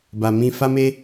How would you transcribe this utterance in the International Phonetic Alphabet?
b a˨ m ĩ˧ f a˦ m e˦

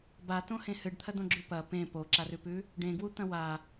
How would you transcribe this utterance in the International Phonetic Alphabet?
b a t õ h ẽ h ɨ ɖ t̪ʰ ɐ d õ ɡ͡ǁ ʉ p ɐ p ẽ p o ǁ a r ʉ p ʉ | ɖ ẽ ɡ w u t̪ ɐ̃ w a

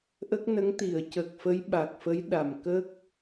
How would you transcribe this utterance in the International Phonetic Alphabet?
ʔ ə˦˥ k̚ n ə˧˥ ŋ t̪ i˨˩˨ ə̯ c ə˨˩ k̚ f ə˧˥ j ɓ a˨˩ k̚ f ə˧˥ j ɗ a˨˩ m k ə˦˥ k̚

